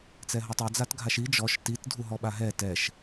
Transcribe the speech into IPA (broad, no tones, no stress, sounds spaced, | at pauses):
t͡s ɛ ɦ ɔ tˤ ɛ d͡z a t ɡʱ a ʃ i d͡ʒ ɔ ʃ t i t dʱ u ɦ ɔ ɓ a ɦ ɛ t ɛ ʃ